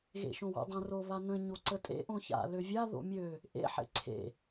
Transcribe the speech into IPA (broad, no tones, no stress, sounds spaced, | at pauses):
ɣ ḛ ʃ õ w o̰ dˤ ə̃ r o β a n ə̃ ɲ o ǀ ə tʼ ḛ ʔ õ ç a̰ l ø vʲ a ð o̰ mʲ ø | ʔ ḛ ħ ḛ ǀʰ ḛ